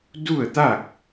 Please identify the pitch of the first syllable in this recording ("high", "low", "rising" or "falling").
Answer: falling